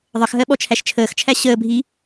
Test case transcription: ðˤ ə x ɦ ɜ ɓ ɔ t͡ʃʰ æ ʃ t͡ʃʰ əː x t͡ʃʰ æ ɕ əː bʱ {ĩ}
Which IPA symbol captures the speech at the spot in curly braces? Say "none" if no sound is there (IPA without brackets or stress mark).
i